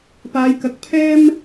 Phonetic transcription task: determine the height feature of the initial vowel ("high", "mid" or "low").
low